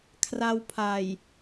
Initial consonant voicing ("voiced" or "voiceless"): voiceless